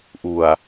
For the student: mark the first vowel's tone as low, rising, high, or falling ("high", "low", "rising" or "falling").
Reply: low